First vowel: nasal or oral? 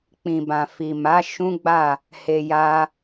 nasal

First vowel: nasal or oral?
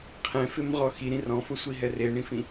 nasal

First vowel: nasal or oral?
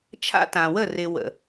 oral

